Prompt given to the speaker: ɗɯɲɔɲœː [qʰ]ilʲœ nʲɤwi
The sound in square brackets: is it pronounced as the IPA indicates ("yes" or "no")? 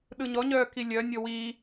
no